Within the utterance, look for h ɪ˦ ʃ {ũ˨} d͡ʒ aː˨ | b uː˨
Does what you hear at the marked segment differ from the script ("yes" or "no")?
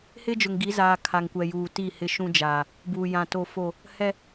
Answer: yes